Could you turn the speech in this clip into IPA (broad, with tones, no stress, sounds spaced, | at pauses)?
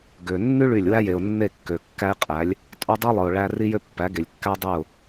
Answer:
ɡ ø˨ nː y˦ ɭ y˦˨ lʲ w æ˦ j e˨ ʊ̯ nː e˦˨ kː ø˨ kː æ˦ ɪ̯ qʼ æ˨˦ lʲ | tʼ o˦ dˤ i˦ lˠ ɯ˨ ʊ̯ ɭ æ˦ r i˦ j ø˦ pː æ˨˦ ɡ e˨ lʲ kː æ˦ dˤ y˦˨ ʊ̯